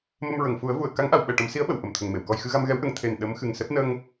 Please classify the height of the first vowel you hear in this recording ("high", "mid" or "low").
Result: mid